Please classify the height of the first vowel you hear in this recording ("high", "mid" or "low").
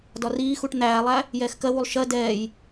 low